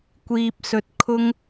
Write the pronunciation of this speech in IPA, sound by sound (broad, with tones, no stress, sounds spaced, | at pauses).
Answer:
kʷ iː˥ p̚ s ɵ˥ t̚ kʰ ʊ˥ ŋ